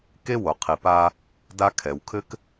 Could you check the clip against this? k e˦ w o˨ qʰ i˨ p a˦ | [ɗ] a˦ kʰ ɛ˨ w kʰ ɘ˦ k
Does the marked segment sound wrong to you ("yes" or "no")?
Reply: yes